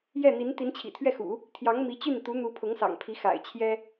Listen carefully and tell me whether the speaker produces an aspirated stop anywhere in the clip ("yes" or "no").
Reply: yes